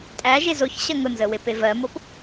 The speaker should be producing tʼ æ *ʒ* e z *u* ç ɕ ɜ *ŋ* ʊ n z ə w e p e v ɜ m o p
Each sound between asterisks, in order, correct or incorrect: correct, incorrect, correct

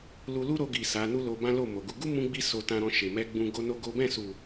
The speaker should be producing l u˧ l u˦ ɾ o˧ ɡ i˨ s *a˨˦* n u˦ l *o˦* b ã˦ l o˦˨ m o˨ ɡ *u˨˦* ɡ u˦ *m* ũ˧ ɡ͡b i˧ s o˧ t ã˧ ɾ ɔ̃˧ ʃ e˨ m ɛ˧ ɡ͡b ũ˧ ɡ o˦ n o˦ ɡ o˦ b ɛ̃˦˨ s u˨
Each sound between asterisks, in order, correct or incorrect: correct, incorrect, correct, correct

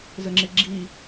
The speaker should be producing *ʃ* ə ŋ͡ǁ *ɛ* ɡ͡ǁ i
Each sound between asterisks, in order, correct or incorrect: incorrect, incorrect

